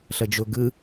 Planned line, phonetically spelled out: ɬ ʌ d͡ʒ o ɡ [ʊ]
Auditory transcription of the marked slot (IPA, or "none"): ɯ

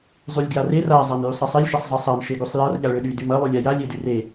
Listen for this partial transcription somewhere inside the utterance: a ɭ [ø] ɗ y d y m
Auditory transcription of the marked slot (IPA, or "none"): ø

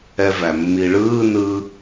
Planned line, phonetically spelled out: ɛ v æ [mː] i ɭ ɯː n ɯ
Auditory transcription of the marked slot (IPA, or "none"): mː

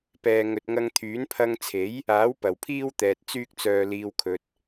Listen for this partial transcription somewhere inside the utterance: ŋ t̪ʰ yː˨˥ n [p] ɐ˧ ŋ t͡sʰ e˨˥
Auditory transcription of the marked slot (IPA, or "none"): pʰ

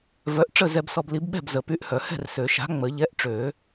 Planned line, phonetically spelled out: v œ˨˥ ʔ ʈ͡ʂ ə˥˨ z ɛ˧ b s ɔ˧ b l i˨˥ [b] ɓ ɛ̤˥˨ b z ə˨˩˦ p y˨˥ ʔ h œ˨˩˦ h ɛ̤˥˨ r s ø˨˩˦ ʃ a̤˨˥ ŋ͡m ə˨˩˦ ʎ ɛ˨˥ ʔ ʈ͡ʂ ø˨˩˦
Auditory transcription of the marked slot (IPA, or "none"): b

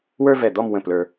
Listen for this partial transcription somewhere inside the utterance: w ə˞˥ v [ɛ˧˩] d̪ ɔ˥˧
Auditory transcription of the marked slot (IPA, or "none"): ɛ˧˩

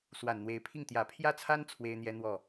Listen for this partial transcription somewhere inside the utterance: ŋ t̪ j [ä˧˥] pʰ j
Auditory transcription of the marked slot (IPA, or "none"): ä˨˩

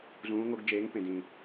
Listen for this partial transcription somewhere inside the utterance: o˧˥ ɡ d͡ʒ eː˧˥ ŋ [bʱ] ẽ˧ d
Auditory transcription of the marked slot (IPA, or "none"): p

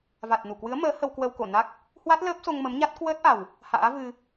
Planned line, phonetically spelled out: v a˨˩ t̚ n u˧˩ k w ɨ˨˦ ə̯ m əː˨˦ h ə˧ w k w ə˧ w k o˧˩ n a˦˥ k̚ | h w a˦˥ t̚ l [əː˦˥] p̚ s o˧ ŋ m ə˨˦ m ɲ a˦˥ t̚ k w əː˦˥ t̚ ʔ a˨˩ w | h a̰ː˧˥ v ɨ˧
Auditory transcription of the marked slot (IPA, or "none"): əː˦˥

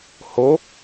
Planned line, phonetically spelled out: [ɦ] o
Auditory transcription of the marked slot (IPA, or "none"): h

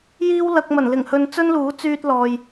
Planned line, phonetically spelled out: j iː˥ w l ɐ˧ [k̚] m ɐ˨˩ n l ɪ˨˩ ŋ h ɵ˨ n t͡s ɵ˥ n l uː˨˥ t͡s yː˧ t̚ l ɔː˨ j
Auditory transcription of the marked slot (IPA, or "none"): k̚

